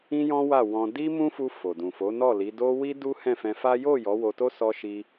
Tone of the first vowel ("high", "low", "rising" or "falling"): high